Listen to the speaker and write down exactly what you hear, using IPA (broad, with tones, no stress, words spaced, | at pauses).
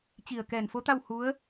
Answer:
t͡ɕi˧˩ə̯ kɛː˧˩nfo˧˥t̪a˥˨w hu˧˥ə̯